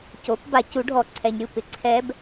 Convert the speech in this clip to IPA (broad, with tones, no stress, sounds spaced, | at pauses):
c o˩˥ p b a˨˩˦ c u˩˥ ɖʱ ɔ˨ ǀʰ ɛ˨ ɲ ɾʲ u˥˨ p ɪ˨ ǀʰ ɛ˧˥ b